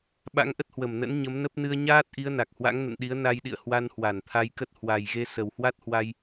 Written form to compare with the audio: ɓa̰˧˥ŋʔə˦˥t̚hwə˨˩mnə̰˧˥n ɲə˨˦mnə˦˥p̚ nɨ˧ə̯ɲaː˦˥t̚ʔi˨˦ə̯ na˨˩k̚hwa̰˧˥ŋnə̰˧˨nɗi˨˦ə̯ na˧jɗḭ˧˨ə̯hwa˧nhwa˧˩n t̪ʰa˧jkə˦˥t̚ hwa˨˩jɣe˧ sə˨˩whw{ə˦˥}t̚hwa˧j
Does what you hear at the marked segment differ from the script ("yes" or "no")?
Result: yes